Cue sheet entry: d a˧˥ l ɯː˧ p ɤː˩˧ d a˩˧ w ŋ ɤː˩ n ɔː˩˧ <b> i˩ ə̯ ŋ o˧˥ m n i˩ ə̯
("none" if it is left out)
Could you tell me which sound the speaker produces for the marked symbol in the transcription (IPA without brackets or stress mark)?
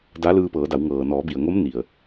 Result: b